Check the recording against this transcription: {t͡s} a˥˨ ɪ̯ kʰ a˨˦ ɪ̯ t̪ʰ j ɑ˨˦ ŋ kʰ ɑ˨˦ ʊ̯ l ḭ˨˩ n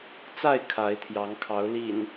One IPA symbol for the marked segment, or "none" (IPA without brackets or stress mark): t͡s